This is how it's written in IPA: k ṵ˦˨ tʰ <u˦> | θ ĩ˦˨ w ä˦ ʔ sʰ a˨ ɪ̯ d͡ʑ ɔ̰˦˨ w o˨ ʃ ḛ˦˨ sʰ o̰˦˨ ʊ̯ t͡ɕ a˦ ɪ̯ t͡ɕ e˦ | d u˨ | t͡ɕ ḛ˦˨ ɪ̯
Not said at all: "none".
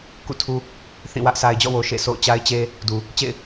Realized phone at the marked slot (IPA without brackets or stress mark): u˦